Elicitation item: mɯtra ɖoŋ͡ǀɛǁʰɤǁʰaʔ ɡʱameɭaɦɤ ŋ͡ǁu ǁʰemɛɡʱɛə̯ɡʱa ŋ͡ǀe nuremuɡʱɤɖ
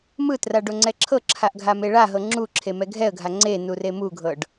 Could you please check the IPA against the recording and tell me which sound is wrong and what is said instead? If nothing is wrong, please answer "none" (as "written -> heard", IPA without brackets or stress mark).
none